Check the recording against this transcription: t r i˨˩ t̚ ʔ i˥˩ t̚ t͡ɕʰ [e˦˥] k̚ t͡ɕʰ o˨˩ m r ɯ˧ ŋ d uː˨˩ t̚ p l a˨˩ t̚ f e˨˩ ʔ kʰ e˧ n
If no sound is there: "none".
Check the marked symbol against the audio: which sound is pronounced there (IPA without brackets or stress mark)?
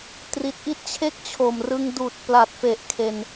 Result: e˥˩